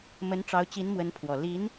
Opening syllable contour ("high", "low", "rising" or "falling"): rising